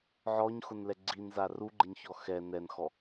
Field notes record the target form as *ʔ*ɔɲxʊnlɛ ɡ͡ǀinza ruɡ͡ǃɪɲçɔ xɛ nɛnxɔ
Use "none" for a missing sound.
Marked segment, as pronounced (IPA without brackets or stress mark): ʕ